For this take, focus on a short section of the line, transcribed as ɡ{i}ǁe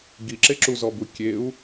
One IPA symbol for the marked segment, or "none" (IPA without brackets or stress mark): i